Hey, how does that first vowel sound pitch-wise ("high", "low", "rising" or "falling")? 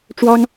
high